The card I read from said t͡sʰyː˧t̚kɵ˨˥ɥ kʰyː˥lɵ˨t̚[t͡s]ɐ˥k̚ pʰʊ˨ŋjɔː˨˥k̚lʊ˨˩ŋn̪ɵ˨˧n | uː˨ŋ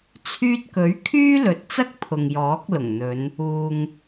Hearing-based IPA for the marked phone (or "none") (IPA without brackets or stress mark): t͡s